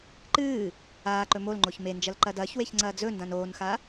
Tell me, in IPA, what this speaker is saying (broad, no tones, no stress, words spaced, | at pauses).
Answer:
ǃɨː | aːǃɵ molŋ͡ǃoç mend͡ʒɐl ǃɐdɐːçweç ŋ͡ǀɐːd͡zɵndãn oːnxa